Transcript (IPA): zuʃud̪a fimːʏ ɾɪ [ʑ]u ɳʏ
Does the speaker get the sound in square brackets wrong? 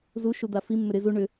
yes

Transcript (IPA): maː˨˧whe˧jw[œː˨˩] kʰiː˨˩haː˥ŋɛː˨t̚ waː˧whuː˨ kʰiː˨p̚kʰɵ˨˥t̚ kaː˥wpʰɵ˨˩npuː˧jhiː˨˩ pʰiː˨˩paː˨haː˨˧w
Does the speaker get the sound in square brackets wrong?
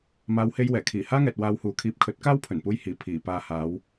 yes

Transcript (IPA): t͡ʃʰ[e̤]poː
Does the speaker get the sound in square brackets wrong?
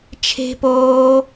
no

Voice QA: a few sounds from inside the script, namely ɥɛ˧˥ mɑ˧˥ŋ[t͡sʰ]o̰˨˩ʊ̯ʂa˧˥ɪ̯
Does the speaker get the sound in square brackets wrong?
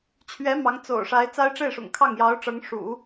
yes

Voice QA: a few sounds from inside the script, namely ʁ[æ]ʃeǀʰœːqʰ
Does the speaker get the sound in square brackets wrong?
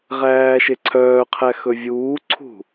yes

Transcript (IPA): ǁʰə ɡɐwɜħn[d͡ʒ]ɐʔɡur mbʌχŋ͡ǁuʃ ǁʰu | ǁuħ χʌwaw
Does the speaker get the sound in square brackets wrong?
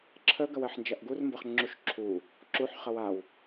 no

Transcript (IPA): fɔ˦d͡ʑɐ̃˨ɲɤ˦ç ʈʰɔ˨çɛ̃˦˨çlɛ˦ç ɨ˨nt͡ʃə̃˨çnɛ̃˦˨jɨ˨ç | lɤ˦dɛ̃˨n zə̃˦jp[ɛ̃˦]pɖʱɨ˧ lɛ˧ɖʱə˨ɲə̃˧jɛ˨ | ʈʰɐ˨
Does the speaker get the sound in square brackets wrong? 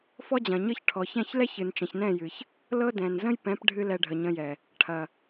yes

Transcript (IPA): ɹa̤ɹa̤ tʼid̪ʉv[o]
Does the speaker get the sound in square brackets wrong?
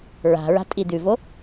no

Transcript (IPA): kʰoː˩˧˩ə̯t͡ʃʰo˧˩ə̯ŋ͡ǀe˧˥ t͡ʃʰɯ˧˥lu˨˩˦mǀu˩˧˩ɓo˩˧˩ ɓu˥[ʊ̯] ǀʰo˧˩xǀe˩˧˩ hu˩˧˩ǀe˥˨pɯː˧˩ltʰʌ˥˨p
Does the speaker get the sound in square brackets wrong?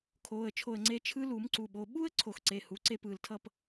yes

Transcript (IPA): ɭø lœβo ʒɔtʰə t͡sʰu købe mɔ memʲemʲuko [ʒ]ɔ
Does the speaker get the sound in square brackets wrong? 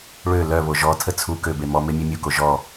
no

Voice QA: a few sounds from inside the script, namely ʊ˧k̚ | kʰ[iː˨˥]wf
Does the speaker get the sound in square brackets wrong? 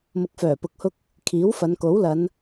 no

